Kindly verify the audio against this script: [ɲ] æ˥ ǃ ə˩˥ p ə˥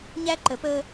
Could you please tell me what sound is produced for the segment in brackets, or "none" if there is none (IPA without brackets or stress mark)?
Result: ɲ